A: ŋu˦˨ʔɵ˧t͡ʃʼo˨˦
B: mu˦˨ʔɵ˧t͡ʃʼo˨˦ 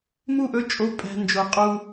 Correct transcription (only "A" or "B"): B